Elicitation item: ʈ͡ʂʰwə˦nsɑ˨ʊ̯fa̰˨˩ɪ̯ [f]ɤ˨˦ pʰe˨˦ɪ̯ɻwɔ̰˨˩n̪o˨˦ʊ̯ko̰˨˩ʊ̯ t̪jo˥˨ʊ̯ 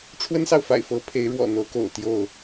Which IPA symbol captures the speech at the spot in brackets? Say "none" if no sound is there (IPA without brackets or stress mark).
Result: f